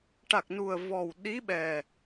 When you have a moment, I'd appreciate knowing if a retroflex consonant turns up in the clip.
yes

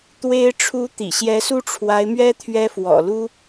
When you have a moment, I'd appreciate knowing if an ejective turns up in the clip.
no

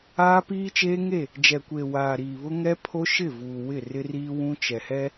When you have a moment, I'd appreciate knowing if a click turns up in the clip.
no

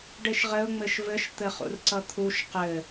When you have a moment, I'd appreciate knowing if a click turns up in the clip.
yes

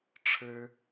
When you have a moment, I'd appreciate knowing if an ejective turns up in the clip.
no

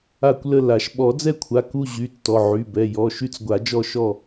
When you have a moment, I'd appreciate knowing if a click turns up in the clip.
no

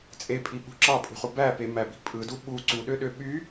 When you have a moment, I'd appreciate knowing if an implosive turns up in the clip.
yes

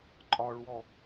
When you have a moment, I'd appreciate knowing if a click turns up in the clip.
yes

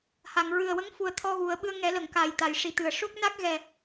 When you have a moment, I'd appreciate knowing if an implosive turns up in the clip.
yes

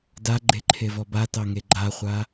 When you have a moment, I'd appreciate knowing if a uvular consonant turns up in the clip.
yes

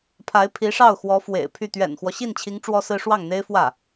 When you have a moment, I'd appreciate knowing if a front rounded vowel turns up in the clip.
yes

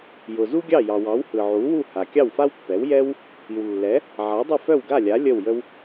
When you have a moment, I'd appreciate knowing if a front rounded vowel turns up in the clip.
yes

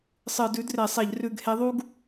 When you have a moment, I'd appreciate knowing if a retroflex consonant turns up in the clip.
no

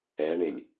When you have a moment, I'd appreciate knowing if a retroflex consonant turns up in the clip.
yes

